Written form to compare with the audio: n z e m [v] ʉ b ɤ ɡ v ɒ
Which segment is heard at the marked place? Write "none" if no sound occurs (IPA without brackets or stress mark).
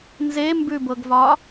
b